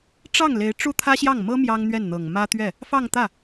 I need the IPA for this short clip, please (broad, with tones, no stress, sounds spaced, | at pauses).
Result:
ʈ͡ʂ ɑ˥˩ ŋ l e˧˥ ɪ̯ ʈ͡ʂ u˥˩ t̪ʰ ä˥ ɕ j ɑ˥˩ ŋ m ɤ˥ m j ɑ˥ ŋ n̪ ɥ ɛ˥˩ n n̪ ɤ˨˩ ŋ m ä˥ t̪ ɥ ɛ˥˩ | f ɑ˥˧ ŋ t̪ ä˥˩